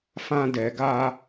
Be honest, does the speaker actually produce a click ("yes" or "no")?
no